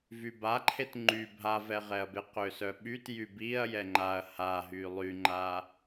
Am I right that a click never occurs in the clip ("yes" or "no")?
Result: no